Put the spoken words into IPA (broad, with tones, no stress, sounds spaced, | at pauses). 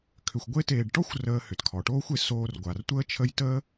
kʰ ʏ˨ xʷ ɡʷ e˥ t eː˨ ɖ ʈ ɔ˥ xʷ r əː˨ h ʏ˩ t kʰ ɔ˩ ʈ oː˥ xʷ e˨ s oː˨ r ɡʷ a˩ r tʷ əː˥ t͡ʃʰ ə˦ j t əː˦